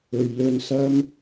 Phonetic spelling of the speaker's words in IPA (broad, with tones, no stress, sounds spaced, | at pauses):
ɵ˨ ɥ l ɵ˧ n s ɐ˥ m